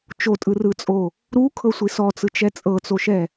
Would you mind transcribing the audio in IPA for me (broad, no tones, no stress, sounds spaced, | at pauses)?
t͡ʃ o tʼ ɯ r ɯ t͡sʼ o | ɾ u kʰ ɤ sʷ i s ɔ t͡s ɯ t͡ʃ ɛ t͡sʼ ɤ t͡s o ʃ ɛ